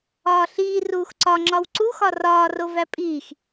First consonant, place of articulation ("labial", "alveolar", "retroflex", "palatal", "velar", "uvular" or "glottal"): alveolar